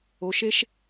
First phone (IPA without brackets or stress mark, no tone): o